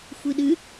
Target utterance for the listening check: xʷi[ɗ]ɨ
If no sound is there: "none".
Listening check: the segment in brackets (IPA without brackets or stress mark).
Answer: ɗ